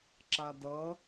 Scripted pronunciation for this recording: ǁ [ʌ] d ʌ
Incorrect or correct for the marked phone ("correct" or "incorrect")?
incorrect